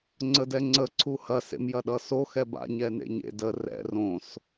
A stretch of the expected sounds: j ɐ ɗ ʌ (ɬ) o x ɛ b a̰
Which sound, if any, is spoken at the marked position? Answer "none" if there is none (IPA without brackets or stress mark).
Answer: s